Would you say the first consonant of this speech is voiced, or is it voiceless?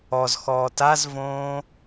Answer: voiced